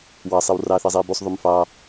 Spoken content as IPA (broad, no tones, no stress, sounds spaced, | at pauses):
w ɑ sˤ i w r ɑ θ e zˤ iː b u sˤ ðˤ y m f ɑ